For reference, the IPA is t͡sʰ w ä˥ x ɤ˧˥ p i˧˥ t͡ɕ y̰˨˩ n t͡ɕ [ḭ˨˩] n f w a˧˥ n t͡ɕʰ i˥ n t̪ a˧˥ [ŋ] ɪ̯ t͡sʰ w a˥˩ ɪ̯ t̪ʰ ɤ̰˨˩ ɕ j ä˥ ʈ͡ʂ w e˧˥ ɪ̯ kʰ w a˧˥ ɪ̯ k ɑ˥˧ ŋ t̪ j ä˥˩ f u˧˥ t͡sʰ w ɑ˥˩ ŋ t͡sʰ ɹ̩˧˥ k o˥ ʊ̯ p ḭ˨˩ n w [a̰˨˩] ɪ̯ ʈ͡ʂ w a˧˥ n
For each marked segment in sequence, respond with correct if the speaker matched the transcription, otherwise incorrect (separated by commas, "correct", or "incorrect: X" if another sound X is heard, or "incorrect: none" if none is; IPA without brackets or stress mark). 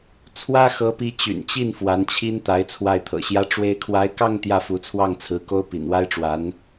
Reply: incorrect: i˥˩, incorrect: none, incorrect: a˥